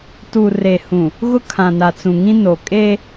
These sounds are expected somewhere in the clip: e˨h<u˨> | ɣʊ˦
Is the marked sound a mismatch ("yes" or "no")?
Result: yes